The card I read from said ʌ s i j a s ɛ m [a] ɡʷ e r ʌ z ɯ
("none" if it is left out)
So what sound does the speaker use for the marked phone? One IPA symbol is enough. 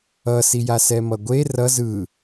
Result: ʌ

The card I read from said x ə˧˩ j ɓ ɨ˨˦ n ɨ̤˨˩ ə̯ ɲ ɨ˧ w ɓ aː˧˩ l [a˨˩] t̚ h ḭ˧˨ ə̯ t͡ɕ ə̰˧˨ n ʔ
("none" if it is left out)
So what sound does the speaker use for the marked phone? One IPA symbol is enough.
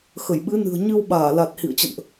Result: a˨˩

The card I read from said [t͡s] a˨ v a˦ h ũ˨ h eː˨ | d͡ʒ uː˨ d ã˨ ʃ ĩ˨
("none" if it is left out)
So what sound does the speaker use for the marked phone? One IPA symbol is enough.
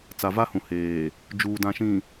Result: t͡s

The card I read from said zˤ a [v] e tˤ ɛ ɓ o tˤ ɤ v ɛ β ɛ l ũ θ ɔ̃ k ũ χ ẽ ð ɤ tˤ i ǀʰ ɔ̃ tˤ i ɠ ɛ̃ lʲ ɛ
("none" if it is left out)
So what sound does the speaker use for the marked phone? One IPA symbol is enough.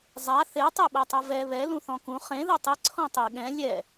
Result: θ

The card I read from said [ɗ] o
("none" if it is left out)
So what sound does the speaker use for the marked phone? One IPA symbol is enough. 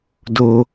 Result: d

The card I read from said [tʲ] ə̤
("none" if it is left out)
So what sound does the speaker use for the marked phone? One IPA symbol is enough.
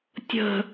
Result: tʲ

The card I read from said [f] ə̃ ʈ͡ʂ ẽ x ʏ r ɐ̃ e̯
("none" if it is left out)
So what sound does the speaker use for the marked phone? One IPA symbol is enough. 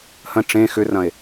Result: h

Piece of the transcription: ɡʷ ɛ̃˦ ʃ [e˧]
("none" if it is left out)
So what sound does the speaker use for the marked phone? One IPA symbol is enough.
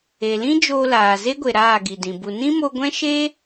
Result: e˦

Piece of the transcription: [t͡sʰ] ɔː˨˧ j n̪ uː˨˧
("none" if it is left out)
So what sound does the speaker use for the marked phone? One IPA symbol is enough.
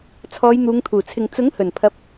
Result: t͡sʰ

